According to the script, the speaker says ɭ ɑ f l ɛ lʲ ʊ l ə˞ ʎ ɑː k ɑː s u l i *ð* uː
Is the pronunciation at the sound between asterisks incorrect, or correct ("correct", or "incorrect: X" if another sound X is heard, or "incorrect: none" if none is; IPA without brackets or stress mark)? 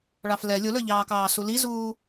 incorrect: z